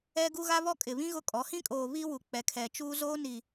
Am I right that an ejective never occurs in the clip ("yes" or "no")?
no